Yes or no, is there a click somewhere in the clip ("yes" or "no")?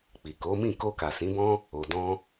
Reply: no